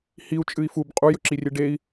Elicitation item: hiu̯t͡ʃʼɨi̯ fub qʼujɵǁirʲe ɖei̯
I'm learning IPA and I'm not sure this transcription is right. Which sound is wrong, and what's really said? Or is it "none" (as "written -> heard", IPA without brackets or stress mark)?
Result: none